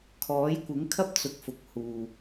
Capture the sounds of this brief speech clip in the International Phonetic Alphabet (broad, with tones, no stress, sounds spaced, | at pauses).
kʰ ɔː˨˥ j kʷ ɪ˨˥ ŋ kʰ ɐ˥ p̚ t͡s ʊ˨ k̚ f ʊ˨ k̚ h uː˨